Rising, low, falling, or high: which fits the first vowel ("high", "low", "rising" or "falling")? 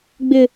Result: high